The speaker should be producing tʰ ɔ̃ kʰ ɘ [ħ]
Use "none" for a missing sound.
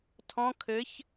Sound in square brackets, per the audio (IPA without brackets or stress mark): ç